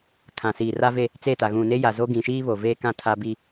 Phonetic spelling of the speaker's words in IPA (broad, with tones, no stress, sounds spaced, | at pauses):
kʰ ã˨ s iː˨ r a˦ v e˦˨ | t͡s e˦˨ t a˨ ɣ ũ˨ n e˦ j a˨ z o˦ ɡ ĩ˨ ʃ iː˦ β o˨ v eː˦ k ã˦˨ tʰ a˦ b i˦